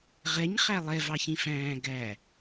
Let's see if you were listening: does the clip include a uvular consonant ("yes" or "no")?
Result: yes